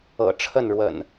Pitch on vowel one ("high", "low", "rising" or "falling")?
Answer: low